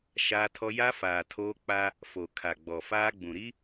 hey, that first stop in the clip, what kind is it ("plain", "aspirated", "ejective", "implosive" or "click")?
aspirated